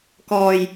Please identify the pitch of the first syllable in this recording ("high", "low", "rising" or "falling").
low